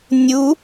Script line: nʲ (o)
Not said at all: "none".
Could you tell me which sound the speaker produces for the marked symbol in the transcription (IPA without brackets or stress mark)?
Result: u